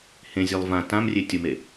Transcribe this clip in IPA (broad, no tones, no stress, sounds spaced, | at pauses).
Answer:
h ẽ zʲ e lˠ v ã t ã m rʲ e tʲ ʊ m e